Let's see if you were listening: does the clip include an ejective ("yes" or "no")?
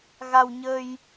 no